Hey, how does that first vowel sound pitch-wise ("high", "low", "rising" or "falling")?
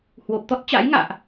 low